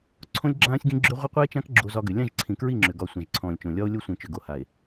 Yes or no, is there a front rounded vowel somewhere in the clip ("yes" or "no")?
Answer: yes